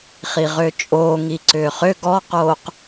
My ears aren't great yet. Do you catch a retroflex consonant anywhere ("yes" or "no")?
no